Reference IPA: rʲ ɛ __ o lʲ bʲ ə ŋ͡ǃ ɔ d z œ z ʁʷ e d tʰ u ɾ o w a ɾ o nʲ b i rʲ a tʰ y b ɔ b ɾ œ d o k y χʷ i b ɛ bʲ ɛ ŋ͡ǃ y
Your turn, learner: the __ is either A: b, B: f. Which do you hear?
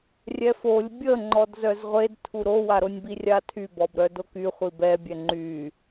B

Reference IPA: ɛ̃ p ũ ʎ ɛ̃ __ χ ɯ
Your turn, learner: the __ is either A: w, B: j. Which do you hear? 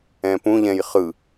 B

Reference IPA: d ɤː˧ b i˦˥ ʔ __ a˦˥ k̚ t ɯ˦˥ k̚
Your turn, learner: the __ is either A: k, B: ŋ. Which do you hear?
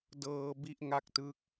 B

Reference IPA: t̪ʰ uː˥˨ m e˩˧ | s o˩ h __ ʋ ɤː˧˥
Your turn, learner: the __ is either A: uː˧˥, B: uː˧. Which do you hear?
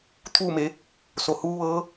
A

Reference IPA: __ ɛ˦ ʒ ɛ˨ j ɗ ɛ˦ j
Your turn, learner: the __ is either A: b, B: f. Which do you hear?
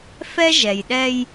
B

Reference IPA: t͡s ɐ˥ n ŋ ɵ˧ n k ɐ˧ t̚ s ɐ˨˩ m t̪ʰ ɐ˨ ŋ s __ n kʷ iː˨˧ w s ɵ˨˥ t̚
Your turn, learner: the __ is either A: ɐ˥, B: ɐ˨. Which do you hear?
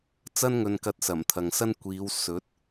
A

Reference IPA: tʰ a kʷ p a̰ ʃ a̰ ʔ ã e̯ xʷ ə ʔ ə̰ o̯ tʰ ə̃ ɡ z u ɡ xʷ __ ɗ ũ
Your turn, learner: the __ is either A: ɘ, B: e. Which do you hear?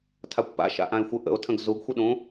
A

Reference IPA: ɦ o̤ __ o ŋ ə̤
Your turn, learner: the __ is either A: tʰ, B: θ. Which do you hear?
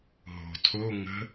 A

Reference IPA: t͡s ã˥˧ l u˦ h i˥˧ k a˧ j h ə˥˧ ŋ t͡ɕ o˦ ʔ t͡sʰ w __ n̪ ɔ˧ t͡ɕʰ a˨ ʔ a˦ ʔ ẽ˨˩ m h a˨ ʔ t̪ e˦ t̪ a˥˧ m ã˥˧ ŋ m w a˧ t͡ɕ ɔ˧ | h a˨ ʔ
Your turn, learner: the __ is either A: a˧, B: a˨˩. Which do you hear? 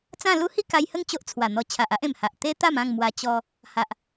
B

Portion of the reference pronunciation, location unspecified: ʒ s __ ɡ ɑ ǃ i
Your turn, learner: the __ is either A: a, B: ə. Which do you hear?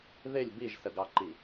B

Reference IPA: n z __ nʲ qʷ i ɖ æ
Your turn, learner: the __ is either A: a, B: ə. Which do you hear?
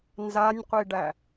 A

